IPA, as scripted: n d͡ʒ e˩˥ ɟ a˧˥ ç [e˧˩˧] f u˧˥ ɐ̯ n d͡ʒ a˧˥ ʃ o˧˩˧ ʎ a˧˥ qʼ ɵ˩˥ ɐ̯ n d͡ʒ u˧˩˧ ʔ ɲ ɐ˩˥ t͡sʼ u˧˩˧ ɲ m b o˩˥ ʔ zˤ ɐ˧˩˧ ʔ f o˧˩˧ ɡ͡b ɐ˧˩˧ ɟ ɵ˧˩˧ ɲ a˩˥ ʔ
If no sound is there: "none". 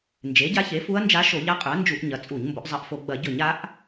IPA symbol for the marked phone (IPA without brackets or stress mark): e˩˥